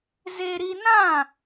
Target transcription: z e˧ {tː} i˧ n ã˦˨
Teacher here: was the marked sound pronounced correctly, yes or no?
no